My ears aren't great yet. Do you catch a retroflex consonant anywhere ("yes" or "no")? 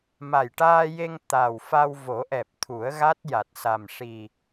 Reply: yes